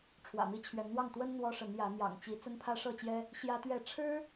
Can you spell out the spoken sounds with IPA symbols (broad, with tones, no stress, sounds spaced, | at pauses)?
ʈ͡ʂʰ w ä̰˨˩ m i˦ t͡ɕʰ ɥ ɛ˨˦ n n̪ w ɑ˥˨ ŋ t̪ w ə˦ n n̪ w ɔ˦ ʂ ə˨˦ n j ä˨˦ n̪ j ɑ̰˨˩ ŋ t͡ɕ i˨˦ t͡s ə˦ n pʰ ä˦ ʂ ɤ˥˨ t͡ɕ j ɛ˦ | ɕ j ä˦ t̪ ɥ ɛ˥˨ ʈ͡ʂʰ ɻ̩˦